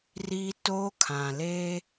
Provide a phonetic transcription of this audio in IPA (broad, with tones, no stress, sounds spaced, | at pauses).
r i˦ t o˦ kʰ ã˨ l e˦